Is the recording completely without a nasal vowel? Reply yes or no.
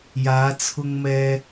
yes